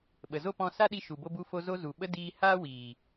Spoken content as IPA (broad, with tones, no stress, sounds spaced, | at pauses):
ɓ ə˨ z o˦ p ɔ̃˧ s a˦ ɗ i˧ ʃ u˨ b o˧ b u˧ f o˧ z o˧ z u˨ ɓ ə˧ d iː˧ h aː˦ w iː˨